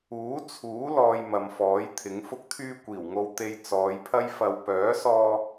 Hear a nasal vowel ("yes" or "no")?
no